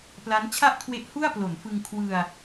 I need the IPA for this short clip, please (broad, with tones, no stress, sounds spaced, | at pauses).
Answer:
p l a˦˥ n t͡ɕʰ a˥˩ ʔ kʰ w e˦˥ ʔ h u˥˩ a̯ p l o˩˦ n f ɯ˧ ŋ kʰ w ɯ˧ a̯